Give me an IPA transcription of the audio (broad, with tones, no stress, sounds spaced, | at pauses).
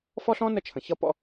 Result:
f ɔ˦ ɬ ɔ̃˦ n ə˦ t͡ʃʰ ə̃˨ ç ʌ˦ p ɔ̰˦